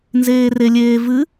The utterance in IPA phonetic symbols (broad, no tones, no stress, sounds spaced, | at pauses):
n z eː r e lʲ eː v ɨ